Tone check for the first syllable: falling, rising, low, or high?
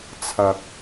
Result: low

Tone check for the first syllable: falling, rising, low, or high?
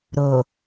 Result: low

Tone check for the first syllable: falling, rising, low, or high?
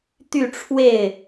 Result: falling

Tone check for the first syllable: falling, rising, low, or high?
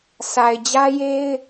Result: low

